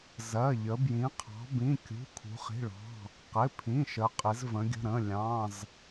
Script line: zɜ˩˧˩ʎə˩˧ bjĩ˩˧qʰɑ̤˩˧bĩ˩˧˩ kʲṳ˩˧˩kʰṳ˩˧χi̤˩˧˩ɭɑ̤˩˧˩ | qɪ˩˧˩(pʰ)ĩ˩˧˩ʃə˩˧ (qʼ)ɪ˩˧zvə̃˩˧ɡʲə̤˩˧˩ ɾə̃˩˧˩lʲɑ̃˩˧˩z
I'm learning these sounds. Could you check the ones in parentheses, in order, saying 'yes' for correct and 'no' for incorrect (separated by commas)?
yes, yes